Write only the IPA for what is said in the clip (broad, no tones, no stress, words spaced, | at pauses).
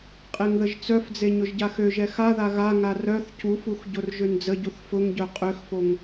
qʼeŋðəʒt͡sœfd͡ze ɲʊʒɟaxøʒɛ xaða ɣaŋa rœθ cufux ɟorʒønd͡zəɟuθ fʊŋɟœ qʼøxfoŋ